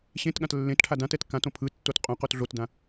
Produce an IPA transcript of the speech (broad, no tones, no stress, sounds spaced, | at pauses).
ɕ ẽ t ɠ ã t lː ẽ t ʈʰ a d ã t ɛ t k ã t õ pʰ ɯ tː o t qʼ õ q o t ɮ o t d ã